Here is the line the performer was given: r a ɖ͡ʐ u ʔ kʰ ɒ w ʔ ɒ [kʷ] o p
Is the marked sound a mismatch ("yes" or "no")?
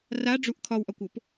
no